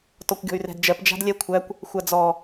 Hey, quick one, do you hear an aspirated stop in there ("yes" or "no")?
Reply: yes